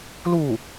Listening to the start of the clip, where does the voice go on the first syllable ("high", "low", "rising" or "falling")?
falling